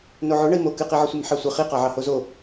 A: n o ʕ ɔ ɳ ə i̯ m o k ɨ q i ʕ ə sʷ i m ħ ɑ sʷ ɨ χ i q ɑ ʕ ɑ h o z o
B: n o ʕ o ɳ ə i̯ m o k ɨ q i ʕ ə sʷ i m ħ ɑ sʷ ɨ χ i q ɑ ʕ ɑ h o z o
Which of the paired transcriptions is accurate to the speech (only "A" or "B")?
B